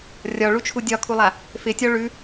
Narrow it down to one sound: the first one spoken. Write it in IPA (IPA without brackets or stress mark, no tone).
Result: rʲ